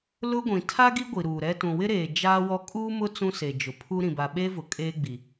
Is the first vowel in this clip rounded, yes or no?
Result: yes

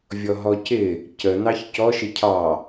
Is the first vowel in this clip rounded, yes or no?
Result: yes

